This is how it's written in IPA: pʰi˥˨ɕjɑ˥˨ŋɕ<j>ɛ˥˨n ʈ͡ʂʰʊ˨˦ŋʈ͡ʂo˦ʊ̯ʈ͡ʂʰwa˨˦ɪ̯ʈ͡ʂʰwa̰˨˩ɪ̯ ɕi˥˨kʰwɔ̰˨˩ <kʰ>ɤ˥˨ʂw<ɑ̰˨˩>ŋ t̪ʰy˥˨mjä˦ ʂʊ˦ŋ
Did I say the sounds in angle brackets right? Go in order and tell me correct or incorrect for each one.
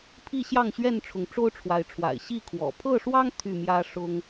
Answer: incorrect: ɥ, incorrect: pʰ, incorrect: ɑ˦

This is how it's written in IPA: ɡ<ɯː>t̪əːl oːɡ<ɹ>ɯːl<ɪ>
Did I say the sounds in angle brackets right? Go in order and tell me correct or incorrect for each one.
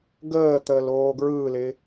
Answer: incorrect: əː, correct, correct

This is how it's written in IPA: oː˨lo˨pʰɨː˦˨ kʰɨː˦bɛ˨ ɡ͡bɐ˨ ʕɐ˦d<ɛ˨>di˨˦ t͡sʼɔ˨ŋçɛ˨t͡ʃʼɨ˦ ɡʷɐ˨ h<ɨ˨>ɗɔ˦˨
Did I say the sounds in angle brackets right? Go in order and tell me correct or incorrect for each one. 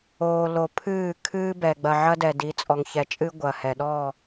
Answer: correct, incorrect: ɛ˨

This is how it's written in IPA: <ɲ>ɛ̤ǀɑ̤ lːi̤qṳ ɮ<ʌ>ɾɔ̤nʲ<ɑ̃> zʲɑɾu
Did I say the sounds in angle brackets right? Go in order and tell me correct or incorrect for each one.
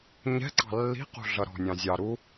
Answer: correct, correct, correct

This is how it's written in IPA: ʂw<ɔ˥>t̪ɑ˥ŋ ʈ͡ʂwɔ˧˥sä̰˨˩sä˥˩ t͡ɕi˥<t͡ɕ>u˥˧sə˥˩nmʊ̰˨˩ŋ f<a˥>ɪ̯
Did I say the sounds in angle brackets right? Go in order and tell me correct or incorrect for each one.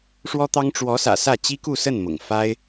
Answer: correct, incorrect: k, correct

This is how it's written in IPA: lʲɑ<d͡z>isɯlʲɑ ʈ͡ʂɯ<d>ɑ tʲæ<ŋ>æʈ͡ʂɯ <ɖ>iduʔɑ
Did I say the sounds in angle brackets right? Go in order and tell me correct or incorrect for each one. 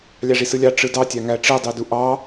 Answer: incorrect: ʐ, correct, correct, incorrect: dˤ

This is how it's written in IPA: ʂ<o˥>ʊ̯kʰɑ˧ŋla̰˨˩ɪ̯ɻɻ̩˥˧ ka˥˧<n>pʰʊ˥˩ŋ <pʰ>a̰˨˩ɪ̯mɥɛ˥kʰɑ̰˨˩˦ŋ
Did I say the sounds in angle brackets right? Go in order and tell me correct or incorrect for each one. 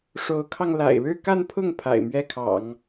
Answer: incorrect: o˧˥, correct, correct

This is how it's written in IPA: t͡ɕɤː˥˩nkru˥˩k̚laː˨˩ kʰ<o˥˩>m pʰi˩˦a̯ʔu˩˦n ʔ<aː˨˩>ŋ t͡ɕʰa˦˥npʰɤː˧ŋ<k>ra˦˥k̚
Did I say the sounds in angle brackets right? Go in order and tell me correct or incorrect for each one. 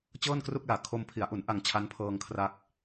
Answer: incorrect: o˧, incorrect: a˨˩, incorrect: kʰ

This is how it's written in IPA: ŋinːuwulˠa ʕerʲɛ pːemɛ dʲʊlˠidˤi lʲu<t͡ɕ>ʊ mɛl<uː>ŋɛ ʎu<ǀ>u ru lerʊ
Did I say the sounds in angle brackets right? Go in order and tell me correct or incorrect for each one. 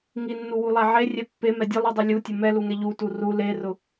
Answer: incorrect: tʲ, incorrect: u, incorrect: t

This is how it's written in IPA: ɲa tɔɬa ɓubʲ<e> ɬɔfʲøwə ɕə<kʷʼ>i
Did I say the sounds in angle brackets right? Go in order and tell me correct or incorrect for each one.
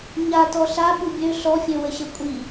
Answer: incorrect: ø, correct

